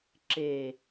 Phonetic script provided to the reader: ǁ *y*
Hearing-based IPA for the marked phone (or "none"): e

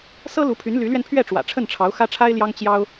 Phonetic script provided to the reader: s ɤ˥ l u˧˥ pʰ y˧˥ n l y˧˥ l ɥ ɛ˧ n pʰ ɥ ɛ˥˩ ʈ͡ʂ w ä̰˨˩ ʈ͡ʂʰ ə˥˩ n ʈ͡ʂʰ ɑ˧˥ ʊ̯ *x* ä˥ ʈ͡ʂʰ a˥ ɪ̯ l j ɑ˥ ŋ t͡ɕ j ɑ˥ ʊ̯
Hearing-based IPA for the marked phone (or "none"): x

